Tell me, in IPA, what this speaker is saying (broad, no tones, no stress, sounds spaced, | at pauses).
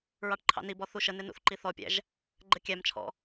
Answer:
ɹ ɑ ʈ ǃʰ ɑ̰ n i b ɔ θ u ʃ ə n ɪ n ṵ θ ǃ i θ ɔ pʲ æ̰ ʒ | ɡ͡ǃ ə kʲ æ m t͡ʃʰ ɔ̰